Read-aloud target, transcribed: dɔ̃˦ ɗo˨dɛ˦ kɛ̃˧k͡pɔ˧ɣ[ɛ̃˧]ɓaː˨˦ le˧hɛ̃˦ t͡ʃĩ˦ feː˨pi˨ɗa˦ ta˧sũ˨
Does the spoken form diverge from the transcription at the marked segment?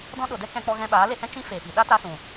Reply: no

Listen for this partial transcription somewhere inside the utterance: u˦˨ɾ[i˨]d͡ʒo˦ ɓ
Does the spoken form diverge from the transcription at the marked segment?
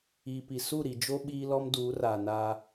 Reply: no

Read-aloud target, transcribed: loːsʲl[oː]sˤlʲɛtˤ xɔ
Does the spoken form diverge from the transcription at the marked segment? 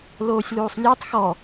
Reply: yes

